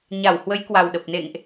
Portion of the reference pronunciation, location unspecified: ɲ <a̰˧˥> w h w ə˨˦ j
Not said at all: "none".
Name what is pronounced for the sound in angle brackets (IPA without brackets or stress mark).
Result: a˧˩